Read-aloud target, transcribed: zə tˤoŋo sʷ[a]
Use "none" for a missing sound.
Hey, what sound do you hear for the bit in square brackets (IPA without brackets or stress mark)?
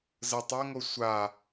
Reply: a